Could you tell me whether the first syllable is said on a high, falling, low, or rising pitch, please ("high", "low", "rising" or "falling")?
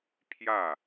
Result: falling